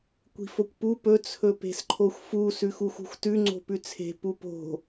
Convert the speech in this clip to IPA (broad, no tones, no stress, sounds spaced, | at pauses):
kʷ i̤ f o kʷ p u p ɵ t͡sʰ ɵ p e̤ s ǃʰ o xʷ f u s ʉ x u x ṳ xʷ t ʉ ŋ͡ǀ o̤ p ʉ t͡sʰ e̤ p u p o̤